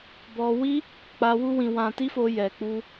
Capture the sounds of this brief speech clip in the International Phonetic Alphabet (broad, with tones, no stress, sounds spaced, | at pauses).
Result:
b ɔ˧ w i˦ | k͡p a˧ w u˦ w ĩ˧ w ã˧ t i˦ f o˧ j ɛ˨ k͡p u˧